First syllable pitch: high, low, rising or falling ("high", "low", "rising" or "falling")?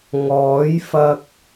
rising